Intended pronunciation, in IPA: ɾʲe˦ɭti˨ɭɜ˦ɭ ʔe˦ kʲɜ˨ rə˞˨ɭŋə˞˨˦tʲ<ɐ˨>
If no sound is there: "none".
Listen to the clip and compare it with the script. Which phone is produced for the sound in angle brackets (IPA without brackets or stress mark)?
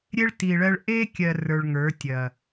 ɐ˨